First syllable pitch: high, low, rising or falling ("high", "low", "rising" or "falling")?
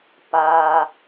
high